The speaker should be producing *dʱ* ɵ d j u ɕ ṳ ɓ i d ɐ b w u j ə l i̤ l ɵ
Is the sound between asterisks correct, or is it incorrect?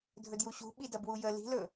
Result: correct